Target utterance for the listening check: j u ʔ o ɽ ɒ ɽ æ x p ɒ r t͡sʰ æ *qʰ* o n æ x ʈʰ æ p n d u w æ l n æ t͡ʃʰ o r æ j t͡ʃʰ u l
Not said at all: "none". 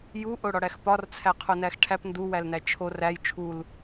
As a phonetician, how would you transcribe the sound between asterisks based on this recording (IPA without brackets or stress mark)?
qʰ